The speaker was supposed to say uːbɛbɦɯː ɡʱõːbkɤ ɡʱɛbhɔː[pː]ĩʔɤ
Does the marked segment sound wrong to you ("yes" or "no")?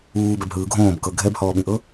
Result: yes